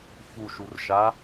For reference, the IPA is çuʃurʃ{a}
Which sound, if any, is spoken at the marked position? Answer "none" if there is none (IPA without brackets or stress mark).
a